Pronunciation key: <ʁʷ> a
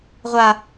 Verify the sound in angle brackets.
correct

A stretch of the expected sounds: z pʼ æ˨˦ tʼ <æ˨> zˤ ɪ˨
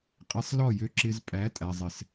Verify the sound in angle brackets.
correct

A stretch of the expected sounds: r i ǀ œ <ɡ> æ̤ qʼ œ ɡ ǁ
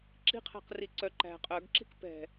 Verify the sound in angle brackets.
incorrect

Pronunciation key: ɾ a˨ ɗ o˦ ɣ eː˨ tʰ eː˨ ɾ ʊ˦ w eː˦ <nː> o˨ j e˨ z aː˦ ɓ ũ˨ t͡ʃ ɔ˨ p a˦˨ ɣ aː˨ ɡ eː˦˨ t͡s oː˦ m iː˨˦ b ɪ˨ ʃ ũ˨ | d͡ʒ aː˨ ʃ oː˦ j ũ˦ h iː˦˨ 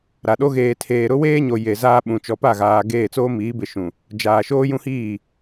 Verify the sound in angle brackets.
incorrect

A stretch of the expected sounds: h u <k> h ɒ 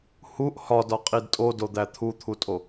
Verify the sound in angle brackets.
incorrect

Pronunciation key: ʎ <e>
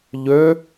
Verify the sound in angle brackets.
incorrect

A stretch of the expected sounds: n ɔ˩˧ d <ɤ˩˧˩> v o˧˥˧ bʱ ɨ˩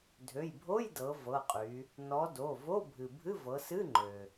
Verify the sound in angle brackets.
incorrect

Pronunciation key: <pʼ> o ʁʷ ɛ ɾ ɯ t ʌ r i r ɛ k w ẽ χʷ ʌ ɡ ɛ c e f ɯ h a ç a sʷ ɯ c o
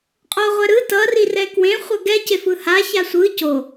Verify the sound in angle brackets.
incorrect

